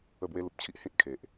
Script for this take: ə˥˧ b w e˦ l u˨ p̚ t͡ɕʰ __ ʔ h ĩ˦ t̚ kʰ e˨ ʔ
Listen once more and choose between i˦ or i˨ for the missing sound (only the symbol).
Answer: i˦